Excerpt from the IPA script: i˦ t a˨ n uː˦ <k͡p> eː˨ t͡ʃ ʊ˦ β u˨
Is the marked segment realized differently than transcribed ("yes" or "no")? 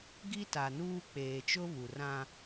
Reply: no